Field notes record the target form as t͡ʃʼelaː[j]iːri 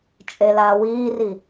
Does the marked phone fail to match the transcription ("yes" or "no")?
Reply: yes